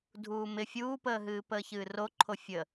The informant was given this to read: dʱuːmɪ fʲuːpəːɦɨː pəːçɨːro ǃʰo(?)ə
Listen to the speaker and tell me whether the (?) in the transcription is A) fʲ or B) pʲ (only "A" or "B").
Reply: A